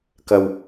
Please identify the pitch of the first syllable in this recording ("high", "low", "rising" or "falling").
low